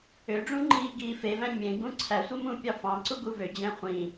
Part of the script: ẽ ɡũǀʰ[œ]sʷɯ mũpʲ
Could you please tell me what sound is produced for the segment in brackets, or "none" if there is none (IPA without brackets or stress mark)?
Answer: æ